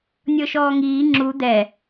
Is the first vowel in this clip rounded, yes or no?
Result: no